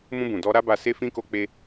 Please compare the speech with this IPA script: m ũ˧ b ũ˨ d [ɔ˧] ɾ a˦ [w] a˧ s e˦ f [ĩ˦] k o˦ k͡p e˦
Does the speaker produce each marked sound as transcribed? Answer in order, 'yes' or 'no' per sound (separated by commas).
yes, no, yes